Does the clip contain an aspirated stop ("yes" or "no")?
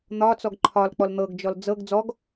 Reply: yes